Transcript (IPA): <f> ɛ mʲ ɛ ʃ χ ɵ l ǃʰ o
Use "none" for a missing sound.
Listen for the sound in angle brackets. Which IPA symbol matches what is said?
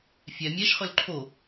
fʲ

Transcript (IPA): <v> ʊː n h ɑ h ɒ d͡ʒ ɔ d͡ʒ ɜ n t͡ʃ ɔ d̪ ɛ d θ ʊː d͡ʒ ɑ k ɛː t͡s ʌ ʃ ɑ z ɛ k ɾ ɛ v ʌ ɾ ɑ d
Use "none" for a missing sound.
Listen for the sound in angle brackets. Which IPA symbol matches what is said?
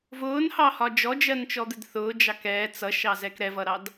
v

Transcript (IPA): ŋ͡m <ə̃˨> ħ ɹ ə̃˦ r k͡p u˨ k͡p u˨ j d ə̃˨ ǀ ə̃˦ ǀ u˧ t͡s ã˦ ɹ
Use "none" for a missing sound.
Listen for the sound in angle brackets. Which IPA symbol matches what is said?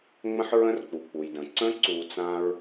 ə̃˦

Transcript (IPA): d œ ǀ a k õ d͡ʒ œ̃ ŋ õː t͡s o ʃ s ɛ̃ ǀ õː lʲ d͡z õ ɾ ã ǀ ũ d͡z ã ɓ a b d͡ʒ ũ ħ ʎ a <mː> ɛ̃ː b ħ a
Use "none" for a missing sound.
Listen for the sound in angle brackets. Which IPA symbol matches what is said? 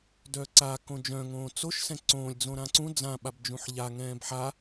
ŋ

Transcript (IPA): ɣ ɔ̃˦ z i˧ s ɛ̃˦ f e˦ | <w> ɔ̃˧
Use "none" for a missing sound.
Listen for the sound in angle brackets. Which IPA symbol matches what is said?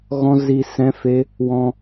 w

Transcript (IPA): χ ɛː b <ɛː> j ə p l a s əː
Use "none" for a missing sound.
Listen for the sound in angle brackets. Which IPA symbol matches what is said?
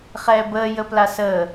əː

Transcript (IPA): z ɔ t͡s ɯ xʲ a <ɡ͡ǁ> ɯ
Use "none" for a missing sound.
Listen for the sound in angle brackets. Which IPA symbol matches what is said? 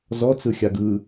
ɡ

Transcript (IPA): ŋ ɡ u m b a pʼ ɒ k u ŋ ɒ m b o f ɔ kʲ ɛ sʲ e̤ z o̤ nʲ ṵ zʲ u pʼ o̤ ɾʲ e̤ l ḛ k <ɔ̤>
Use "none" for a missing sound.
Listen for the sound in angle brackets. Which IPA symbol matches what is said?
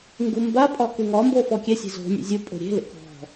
ɔ̤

